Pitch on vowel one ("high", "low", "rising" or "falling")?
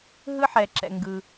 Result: high